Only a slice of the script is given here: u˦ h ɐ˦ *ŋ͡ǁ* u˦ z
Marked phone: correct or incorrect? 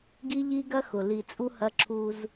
incorrect